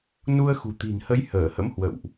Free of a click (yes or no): yes